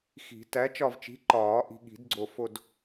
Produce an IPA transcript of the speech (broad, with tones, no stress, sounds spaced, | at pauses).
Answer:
x i̤˨˩˦ t æ˨˥ t͡ʃ ɒ˦˨ v t͡ʃ i̤˨˥ ǃ ɒː˨˩˦ ʔ i̤˨ ɠ i̤˨˩˦ d ɡ͡ǀ o˨ f o˦˨ d